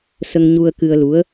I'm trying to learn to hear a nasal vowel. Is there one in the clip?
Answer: no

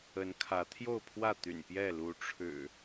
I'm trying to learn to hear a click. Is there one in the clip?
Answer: no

